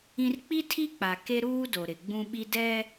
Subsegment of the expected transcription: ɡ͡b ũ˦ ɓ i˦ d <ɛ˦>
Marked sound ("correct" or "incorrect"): correct